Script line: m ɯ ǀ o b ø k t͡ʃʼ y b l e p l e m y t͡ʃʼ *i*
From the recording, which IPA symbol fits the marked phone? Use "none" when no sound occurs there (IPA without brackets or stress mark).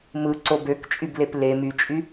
y